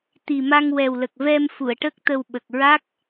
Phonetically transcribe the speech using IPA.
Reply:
t̪ i˨˩ m a˧ ŋ w ɛ˨˩ w l ə˨˩ k̚ v ɛ˧ m f u˨˩˨ ə̯ ʈ ə˦˥ k̚ t̪ ə˧ w ɓ ə˨˩ k̚ ɹ a˦˥ k̚

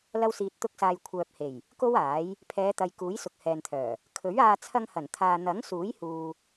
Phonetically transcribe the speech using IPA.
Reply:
l ɐ˥ w s iː˧ t̚ t̪ ʊ˥ k̚ s aː˧ j kʷʰ œː˨ p̚ h e˨˩ j | k o˥ w aː˨˥ j | pʰ ɛː˨˧ t̪ ɐ˨ j k uː˨˥ j s ʊ˨ k̚ h ɛː˨ n t̪ʰ œː˨˩ | kʰ ɵ˨˥ ɥ aː˧ t͡sʰ ɐ˧ ŋ h ɐ˨˩ n t̪ʰ aː˨ n̪ ɐ˨˥ ŋ s uː˨˥ j h uː˧

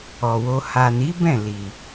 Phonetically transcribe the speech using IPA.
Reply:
ɔ˨ w o˧ h a˨ n i˨˦ b ɛ̃˦˨ l i˨

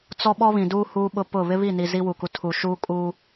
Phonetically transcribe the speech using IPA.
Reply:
t͡s ɔ˦ ɓ ɔ˦ β ĩ˨ d uː˦ h uː˦ ɓ ʊ˦ p ʊ˦˨ β ɪ˦ β i˦˨ n i˨ z i˦ w u˨ k u˨ tʰ uː˨ ʃ uː˦ kʼ uː˦

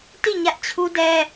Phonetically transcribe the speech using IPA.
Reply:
t i˦˨ ɲ ä˦ ʔ t͡ɕʰ u˦ d ɛ˦

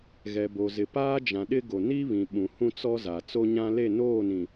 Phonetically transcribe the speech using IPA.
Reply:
ɣ ɛ˨ b o˨ z ɪ˨ p aː˦ d͡ʒ ã˨ ɗ ɪ˦ ɡ o˨ n i˦ β ĩ˨ ɓ ũ˨ h ũ˦ t͡s ɔ˦ z a˨ t͡s o˦ ɲ ã˦ l e˦˨ n oː˦˨ n ĩ˨

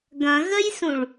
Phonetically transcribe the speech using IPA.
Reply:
ɡ ɐ̃ ɣ ə j s ũ ɭ

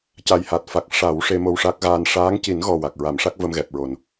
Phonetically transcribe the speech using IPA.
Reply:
c a˨˩ j h a˨˩ t̚ f a˨˩ k̚ ʂ a˨˩˦ w ʂ e˧ m o˧ w ʂ a˦˥ k̚ ɣ aː˧ n ʂ aː˧˥ ŋ c i˨˩˦ n ɣ ɔ˨˩ w a˨˩ k̚ ɹ a˨˩˦ m ʂ a˦˥ k̚ v ə˧ m ɣ ɛ˨˩ p̚ ɹ o˨˩ n

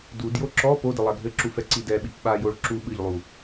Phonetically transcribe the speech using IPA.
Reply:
d u d j o ǁ ɔ p o d ɘ lˠ a ɡʱ ɘ ǁ u f ɛ ǀ i d ɛ ɓ i p ɓ a j o ɭ ǁ u ɓ ɨ ʎ lˠ u

